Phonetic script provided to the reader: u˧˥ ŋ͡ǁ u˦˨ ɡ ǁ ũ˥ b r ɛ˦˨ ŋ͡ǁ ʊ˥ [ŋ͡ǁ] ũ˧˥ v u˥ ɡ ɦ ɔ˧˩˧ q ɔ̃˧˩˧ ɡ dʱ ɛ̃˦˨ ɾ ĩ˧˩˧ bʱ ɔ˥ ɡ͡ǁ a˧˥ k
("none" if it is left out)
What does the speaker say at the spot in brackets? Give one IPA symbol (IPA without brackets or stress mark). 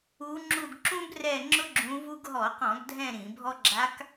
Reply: ɡ͡ǁ